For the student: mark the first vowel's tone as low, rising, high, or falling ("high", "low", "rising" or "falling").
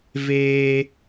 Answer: high